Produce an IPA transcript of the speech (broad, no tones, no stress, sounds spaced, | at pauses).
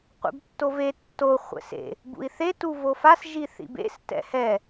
qʷ ḛ b tː o v e tː o χʷ ɛ̰ s ḛ | b ṵ i̯ θ e t u v o f a s ʒ i θ ḭ b ḛ s t ɛ̰ h ɛ